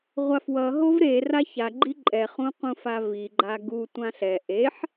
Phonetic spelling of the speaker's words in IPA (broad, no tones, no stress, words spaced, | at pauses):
ʁʷafwʌ ɦovɾe raça ɡ͡ǃiǃʼɛ χũqũfavi ɡ͡ǃaɡu tʷãɬɛ ʔeħ